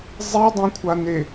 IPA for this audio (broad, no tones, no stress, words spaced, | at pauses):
zˤidˤĩkʷʰane